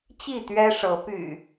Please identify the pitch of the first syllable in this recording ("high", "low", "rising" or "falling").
falling